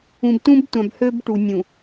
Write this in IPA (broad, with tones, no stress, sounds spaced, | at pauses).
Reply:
ũ˨ b t ũ˦ b tʷ ã˨ b h ø˦ b ʈ u˨ nʲ ũ˨